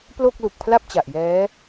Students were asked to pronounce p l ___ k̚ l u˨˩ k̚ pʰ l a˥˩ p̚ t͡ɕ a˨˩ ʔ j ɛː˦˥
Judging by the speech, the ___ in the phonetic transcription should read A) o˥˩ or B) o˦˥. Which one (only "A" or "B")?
A